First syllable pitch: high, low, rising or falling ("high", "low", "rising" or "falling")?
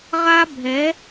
high